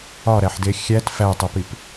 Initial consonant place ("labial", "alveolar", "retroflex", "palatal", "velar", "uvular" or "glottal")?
alveolar